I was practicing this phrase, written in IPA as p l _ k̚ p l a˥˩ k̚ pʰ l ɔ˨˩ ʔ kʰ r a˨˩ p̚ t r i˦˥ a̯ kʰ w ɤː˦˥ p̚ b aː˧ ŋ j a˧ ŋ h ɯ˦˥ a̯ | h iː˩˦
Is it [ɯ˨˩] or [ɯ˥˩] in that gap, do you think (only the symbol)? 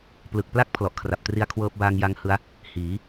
ɯ˨˩